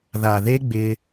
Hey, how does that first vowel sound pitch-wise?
low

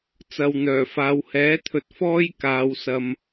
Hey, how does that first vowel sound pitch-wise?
low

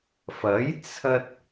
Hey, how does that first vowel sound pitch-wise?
rising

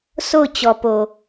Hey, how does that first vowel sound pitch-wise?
falling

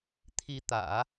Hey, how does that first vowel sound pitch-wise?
rising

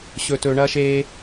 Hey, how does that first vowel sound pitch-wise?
high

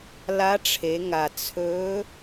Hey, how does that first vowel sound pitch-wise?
rising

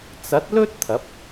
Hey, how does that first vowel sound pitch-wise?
rising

